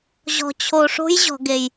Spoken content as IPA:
ʑ ɔ̤˨ t͡ɕʰ o˨ ʂ o̤˦ j ʑ ɔ̤˨ ɡ e˨ j

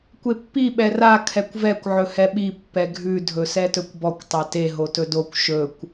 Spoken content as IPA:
kʷ e pː i ɓ ɛ r a kʰ ɛ kʷ v ɛ kʷ ʕ ɵ h ɛ ɓ i pː ɛ ɡʱ ʉ dʱ ɵ s ɛ t ɵ kʷ b ɔ kʷ tˤ a t e ɦ o t ɵ d o kʷ ʃ ɵ kʷ

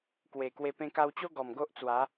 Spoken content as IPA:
k w e˨˩ k w e˧ p ẽ˧ k a˧ w t͡ɕ o˦ ɡ ɔ˨˩ m ɡ o˦ ʔ t͡s w a˨˦

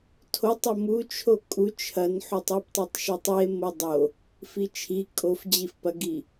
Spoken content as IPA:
tʰ o tˤ ɐ m u t͡ʃʰ o kʼ u t͡ʃʰ ɐ n ħ u tˤ i p tˤ u tˤ ʃ o tˤ i e̯ m o dˤ o | f i t͡ʃʰ i kʼ o f d͡ʑ i f p ɐ ɡ i

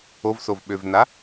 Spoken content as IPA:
o v s o v ɓ ø v n a

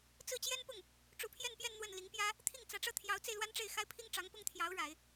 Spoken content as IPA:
t͡s ɹ̩˥˩ t͡ɕ j ɛ˥ n p ʊ˥˩ ŋ | ʈ͡ʂ u˧˥ pʰ j ɛ˥˧ n p j ɛ˥˧ n n̪ w ə˥˩ n l i˧˥ ŋ p j ä˥ | t̪ʰ i˥˩ ŋ t͡s ä˧˥ ʈ͡ʂ ɤ˥˩ t̪ʰ j ɑ˧˥ ʊ̯ t͡s e˧ ɪ̯ l w a˥ n ʈ͡ʂ e˥˩ ɪ̯ x a˥ ɪ̯ pʰ i˥ ŋ ʈ͡ʂ ɑ˧˥ ŋ p ʊ˥ ŋ t̪ʰ j ɑ˧˥ ʊ̯ ɻ a˨˩˦ ɪ̯

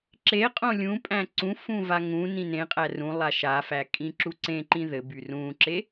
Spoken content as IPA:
ǁ e qʼ õ lʲ ũ pʼ æ̃ ǀ ũ f ũ v a ŋ ũ n ĩ n ẽ qʼ æ r ũ lˠ a ʃ a f æ kʼ ĩ ǁ u ǀ ẽ ǃ ĩ ð ɘ b y r ũ ǁ e

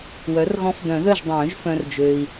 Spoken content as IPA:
w œ˩˥ r ɣ ɔ̃˧˥ f d œ̃˨˩˦ ð œ˥˨ ʒ dˤ œ̃ː˨˩˦ ʒ f œ̃˨ r d͡ʒ ø˨ i̯

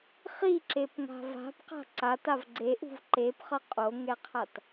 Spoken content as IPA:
χ i ǁ e p ŋ a̤ v a̤ p q a̤ ǀ a t a v ɡ͡ǀ e ʔ ṳ v ǃ e p χ ʌ qʼ o ŋ ɛ qʰ a t

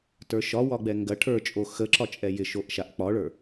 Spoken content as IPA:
t ə˞ ʃ ɒ w ɒ ɡ͡b ɛ ŋ ɡ ɐ ʈʰ ə˞ t͡ʃʼ o x ə ǁ ɒ t͡ʃʼ ɛ j ɪ ʃ o ʔ ʃ a ʔ k͡p ɒ ɭ ə˞

